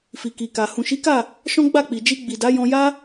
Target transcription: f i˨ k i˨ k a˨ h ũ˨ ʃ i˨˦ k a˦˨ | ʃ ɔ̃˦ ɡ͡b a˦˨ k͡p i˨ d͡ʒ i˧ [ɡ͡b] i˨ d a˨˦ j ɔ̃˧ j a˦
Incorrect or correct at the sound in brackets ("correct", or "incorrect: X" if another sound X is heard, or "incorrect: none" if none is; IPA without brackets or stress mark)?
correct